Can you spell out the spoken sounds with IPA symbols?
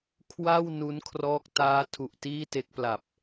kʰ w a˥˩ w n u˦˥ n kʰ r ɔː˦˥ k̚ t aː˦˥ tʰ u˨˩ ʔ t iː˥˩ t e˦˥ k̚ p l a˨˩ p̚

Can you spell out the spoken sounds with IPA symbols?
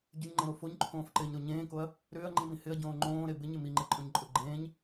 ɟ ʏ ɲ ŋ͡ǃ ẽ ɾ o f o ɲ ǃʰ õː f ǃ ɪː ɲ ɾ o ɲ ẽː k o ɐ̯ | ɾ ʏː ɐ̯ ŋ͡ǃ ĩ m ĩ h ɪ ɐ̯ ɟ õː ŋ͡ǃ õː ɾ e b ɪ ɲ ɪ m i ŋ͡ǃ e ǃʼ õ ɲ ǃʼ ʊ ɡ͡ǃ ẽː ɲ

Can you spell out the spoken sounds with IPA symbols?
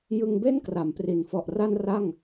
j ɯ˧ ŋ b e˥˩ n k r a˩˦ m p r i˩˦ n f ɔ˨˩ ʔ r a˧ n r a˥˩ ŋ

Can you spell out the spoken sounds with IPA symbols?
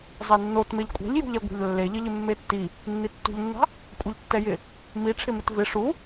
zˤ ɛ nː o t m e ʎ kʷʼ a̤ ʎ j ṳ ʎ ɛ ɡʷ a̤ ʎ lː e ʎ ɪ ʎ ɪ mː e tː i | nː i tː ṳ ʎ nː a̤ | kʷʼ e ʎ tː ɛ j ɪ | m i ʈ͡ʂʰ ɪ m ɪ t v ɪ ʂ u

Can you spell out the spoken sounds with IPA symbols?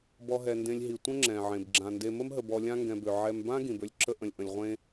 b ɔ˨ ɦ ɛ˩ n d ẽ˨ lʲ ɦ i˩ tʷ ə̃˥ ŋ͡ǁ ɛ̃˩ ʕ ẽ˩ b ɡ͡ǁ ã˩ n d e˨ m ə˦ m ɦ ə˨ b ɔ˨ lʲ ã˦ ŋ ɡ ɛ̃˨ b ø˩ ʕ ɛ˨ m b ã˦ ɡ ĩ˩ b ø˦ lʲ ǁ ə˦ ʔ ə̃˨ lʲ ʔ ə̃˨ lʲ ʁʷ ẽ˥

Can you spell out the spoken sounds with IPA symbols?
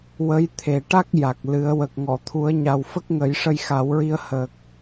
w ə˧˥ j t̪ʰ e˨˩ ʈ a˦˥ k̚ j a˨˩ k̚ l ɨ˨˩˦ ə̯ w ə˨˩ k̚ ŋ ɔ˨˩˨ t̪ʰ u˨˩˦ ə̯ ɲ a˨˩ w f ə˦˥ k̚ ŋ ə˨˩˦ j ʂ ə˧ j x a˨˩˦ w ɹ i˧ ə̯ h ə˨˩ k̚

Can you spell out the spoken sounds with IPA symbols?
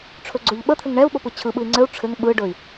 ʈ͡ʂʰ ɵ ɡ͡ǀ ɵ ʎ ɓ ə t̪ʰ ɘ ŋ ɳ ɛ u̯ ɓ o p ɯ t͡ɕʰ ɯ ɓ ɯ i̯ ŋ͡ǀ ɘ u̯ ʈ͡ʂʰ ɘ ŋ ɓ ɯ ɖ ɵ i̯

